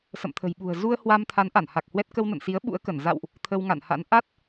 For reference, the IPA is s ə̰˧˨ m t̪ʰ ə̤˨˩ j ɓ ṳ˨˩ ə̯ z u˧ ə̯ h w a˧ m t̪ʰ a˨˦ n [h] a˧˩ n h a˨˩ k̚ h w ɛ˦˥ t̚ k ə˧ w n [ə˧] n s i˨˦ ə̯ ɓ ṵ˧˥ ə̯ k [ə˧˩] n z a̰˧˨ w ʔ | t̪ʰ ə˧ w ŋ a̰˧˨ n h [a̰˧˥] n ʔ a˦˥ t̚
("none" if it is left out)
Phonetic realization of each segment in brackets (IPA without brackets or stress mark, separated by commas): ʔ, ə̰˧˨, ə˧˩, a̰˧˥